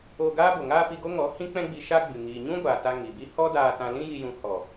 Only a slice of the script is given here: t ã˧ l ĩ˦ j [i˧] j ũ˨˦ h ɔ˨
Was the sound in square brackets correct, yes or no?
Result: yes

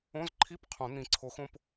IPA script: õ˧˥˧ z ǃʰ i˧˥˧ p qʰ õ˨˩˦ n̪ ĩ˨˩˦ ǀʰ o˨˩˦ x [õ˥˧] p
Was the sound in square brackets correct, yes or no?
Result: yes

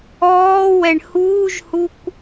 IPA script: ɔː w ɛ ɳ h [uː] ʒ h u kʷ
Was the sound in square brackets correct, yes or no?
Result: yes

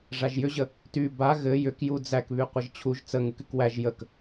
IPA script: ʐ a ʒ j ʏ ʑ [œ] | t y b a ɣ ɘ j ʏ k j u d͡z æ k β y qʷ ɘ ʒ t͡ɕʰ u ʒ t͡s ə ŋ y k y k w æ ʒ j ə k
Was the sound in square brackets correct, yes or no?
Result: no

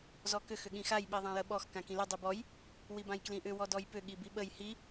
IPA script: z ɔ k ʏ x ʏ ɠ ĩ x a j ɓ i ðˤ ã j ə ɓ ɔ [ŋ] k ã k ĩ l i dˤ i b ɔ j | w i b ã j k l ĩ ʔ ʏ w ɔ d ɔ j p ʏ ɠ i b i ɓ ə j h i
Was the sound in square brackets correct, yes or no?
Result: no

